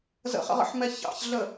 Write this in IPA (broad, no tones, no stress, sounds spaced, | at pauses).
z ə̰ χ ə̰ ʁ ə̰ ħ m ɛ ç ɑ̰ ç ɮ ə